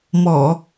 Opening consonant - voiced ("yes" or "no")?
yes